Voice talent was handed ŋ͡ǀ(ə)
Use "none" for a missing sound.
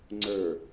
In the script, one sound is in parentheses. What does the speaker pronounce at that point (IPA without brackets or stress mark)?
ə˞